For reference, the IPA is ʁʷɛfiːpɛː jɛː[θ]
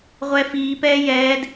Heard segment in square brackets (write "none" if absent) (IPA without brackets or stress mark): d